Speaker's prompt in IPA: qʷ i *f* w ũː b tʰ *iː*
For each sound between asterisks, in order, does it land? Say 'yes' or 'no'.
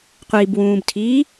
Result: no, yes

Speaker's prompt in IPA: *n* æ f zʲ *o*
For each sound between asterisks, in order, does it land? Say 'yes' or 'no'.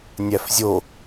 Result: no, yes

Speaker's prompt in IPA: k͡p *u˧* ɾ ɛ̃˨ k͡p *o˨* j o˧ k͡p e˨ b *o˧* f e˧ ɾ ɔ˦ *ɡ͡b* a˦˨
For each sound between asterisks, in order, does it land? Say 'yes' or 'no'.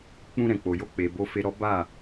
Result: no, yes, yes, no

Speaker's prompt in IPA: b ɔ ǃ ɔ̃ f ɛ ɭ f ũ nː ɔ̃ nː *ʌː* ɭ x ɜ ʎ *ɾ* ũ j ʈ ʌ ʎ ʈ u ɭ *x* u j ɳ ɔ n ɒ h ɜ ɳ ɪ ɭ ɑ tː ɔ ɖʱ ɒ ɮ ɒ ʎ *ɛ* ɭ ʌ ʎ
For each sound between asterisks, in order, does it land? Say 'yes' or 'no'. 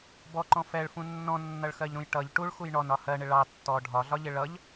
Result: no, yes, yes, no

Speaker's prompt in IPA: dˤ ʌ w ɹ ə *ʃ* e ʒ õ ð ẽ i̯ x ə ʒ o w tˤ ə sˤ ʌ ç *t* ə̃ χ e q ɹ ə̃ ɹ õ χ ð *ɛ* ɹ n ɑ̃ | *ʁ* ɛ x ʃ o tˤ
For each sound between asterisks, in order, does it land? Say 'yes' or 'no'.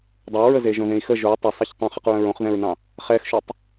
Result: no, no, no, no

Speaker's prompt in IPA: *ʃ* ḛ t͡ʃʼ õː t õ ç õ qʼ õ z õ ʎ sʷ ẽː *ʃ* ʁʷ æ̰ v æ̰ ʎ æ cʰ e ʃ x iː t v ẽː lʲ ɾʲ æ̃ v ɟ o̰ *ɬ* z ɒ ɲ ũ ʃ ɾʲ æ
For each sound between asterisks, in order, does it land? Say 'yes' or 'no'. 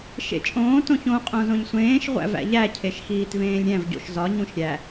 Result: yes, yes, no

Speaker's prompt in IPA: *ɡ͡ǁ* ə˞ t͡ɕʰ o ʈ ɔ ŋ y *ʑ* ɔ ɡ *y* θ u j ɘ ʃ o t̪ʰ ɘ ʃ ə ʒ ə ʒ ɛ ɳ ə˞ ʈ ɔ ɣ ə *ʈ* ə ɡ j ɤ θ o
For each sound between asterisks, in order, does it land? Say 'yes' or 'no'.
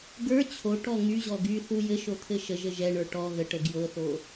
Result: no, yes, yes, yes

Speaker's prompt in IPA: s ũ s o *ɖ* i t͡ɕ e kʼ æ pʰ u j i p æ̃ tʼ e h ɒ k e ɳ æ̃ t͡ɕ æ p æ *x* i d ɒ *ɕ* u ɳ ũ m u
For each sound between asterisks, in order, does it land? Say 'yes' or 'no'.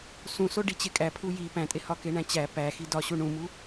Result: yes, yes, yes

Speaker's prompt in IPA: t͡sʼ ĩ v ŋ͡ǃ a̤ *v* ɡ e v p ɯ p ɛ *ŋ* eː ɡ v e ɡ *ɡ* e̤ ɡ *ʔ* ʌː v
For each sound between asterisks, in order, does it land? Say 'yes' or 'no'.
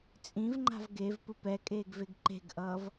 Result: yes, no, no, yes

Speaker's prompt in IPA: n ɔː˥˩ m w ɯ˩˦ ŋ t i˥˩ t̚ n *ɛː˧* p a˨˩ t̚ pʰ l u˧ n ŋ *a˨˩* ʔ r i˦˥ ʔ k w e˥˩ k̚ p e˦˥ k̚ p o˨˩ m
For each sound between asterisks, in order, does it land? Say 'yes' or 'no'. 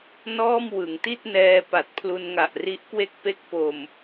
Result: yes, yes

